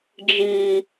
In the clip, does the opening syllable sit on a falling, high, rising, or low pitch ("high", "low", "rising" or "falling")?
high